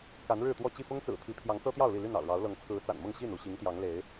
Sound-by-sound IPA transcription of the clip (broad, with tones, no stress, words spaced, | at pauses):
ka˨˦nɻɻ̩˥˨t̪wɔ˥˨ t͡ɕi˥˨fʊ˦ŋt͡sɹ̩˨˩t̪ʰi˨˦ pʰjɑ˨˦ŋt͡sɤ˦t̪jɑ˥˨ʊ̯li˥˨ ly˥˨nɑ̰˨˩ʊ̯ɻɑ˨˦ʊ̯lɤ˨˦ŋ t͡sʰɹ̩˨˦t͡sa̰˨˩nmʊ˥˨ŋ ɕi˥˨nu˥˨ ɕi˨˦ŋt̪jɑ˨˦ŋle˨˦ɪ̯